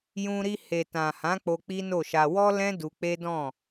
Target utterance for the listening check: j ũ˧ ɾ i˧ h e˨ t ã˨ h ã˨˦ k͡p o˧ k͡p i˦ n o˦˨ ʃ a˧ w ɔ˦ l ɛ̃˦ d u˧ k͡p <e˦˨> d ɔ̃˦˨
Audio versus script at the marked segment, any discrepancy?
yes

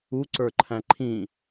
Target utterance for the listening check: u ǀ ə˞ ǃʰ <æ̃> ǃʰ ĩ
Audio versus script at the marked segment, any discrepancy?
no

